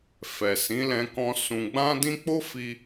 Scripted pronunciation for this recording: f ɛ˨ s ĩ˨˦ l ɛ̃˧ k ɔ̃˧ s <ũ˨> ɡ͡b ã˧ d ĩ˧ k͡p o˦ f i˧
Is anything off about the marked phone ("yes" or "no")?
no